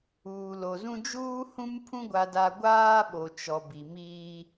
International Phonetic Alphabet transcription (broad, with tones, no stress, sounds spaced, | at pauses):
uː˨ l o˨ z ũ˦ d͡ʒ uː˦ h ũ˦ m pʰ ũ˦ ɡʷ a˦ d a˦ ɡʷ aː˦ ɓ o˨ t͡ʃ ɔ˨ b i˨ m iː˦